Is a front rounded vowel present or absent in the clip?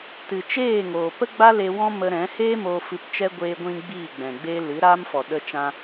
absent